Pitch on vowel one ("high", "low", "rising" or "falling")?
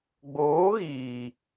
rising